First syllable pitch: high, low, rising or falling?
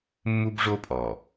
high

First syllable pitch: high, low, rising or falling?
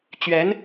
rising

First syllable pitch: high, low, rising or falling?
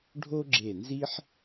high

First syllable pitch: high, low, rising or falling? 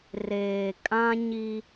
low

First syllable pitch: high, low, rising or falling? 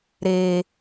low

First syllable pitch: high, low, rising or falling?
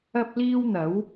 high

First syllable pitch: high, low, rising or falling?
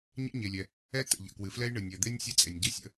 high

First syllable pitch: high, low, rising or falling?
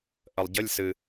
low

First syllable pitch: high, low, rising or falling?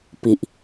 low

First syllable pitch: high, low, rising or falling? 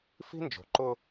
high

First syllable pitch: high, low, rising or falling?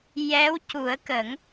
rising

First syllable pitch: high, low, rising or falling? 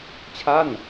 falling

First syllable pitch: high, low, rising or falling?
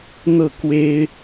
falling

